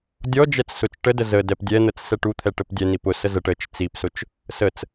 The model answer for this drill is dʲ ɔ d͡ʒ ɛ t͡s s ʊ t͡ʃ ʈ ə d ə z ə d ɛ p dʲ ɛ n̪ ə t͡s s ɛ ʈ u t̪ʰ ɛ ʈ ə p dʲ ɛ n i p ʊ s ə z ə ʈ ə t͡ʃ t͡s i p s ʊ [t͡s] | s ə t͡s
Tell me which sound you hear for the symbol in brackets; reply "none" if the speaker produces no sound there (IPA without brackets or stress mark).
t͡ʃ